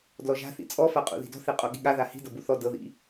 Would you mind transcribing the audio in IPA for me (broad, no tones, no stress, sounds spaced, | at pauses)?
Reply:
d l ɔ ʒ a̤ θ ḭ t͡sʼ ɔ f a qʼ ṵ ð i̤ d ɔ̤ θ e qʼ o ɠ i̤ ɠ a ð a h i̤ d ɤ b u θ ɔ d ɤ ð ḭ